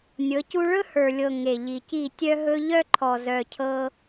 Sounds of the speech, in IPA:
nʲ ɤ˨˦ c u˦ ɭ ɵ˦ h ə˞˨ lʲ ɤ˨ ŋ e˨ ʎ i˨ c i˦˨ tʲ œ˦ ɦ ɵ˦ ʎ œ˦ ǃʰ ɔ˨ z œ˨ cʰ ɤ˦

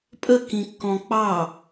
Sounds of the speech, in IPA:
pʼ ə k ĩ kː ɔ̃ k͡p ɑ

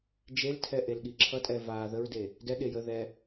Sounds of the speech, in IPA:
d͡ʒ e l tʰ ɛ ʔ e l ɠ i ǁʰ ʌ tʼ ɛ v a ð ə ɹ d e | d ɛ ɠ e j ə ð ɛ

